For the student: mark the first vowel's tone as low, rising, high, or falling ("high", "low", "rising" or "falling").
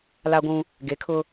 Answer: high